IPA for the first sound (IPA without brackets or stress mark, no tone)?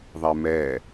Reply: ðˤ